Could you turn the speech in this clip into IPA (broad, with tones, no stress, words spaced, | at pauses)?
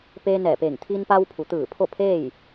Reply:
peː˧ nɛː˧˩peː˧˩ŋ t̪ʰiː˧npa˧wpʰu˩t̪ɯː˧˩ pʰo˥˨pʰeː˥˨j